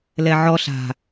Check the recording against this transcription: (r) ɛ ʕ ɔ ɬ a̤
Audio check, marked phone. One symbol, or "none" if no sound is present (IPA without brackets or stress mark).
l